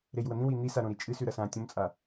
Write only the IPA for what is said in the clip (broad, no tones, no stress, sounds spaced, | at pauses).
ɾ e j w ɐ n̪ ĩ w i n̪ i s a ɾ õ ɾ i t͡ʃʼ ɨ s ʉ ɾ ɐ s ã tʲ õ m t͡sʼ a